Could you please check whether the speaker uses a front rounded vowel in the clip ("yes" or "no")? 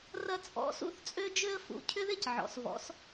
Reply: yes